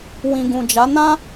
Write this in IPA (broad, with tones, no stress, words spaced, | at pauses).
wĩ˨ɡũ˨d͡ʒa˨˦ nã˦